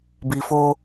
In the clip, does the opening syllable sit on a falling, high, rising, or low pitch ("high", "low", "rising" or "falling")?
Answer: low